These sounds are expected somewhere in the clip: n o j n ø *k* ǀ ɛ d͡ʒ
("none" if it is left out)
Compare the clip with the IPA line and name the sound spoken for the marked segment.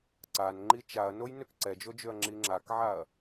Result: k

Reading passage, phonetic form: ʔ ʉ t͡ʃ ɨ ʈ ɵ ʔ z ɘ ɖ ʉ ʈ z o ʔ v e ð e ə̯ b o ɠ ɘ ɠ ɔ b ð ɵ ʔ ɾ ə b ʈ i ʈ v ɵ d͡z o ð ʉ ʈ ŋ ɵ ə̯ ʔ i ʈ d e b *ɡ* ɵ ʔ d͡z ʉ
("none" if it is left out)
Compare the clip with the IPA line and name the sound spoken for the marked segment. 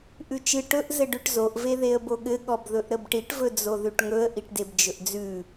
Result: d͡ʒ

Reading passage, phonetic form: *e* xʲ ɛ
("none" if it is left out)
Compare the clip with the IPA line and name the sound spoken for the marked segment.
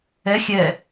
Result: ɛ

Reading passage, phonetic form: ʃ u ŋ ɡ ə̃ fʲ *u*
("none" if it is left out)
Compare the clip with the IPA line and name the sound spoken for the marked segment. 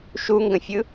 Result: ɯ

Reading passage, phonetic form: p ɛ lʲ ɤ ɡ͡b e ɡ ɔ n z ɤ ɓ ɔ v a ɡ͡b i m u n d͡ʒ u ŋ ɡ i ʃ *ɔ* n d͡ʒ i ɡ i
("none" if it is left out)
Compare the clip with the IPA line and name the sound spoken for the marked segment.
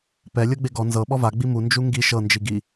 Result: ɤ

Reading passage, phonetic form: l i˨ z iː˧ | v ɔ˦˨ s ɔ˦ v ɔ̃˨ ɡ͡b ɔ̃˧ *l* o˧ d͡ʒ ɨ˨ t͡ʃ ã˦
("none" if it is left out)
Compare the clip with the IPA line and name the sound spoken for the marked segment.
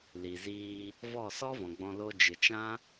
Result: l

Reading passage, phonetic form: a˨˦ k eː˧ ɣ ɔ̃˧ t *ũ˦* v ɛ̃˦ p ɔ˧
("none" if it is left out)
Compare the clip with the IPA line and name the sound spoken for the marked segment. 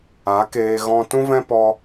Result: ũ˦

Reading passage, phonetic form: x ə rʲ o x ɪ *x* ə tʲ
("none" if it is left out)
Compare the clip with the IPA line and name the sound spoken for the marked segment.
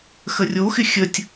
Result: xʲ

